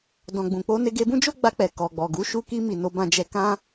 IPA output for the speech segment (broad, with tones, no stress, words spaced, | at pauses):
dɔ̃˨ɡ͡bũ˨k͡po˧ ne˧ɡe˧bũ˦d͡ʒo˦ ɡ͡ba˧k͡pɛ˨ kɔ˨ɡ͡bɔ˨ ɡu˨˦ ʃu˧ki˧mi˨ no˧bã˧d͡ʒɛ˧ kã˦